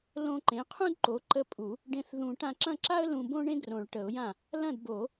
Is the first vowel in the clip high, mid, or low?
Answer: mid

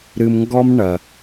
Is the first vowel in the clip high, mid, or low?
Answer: high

